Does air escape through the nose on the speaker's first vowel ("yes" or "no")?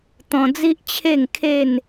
yes